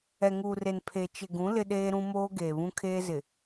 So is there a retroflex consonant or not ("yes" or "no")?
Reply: no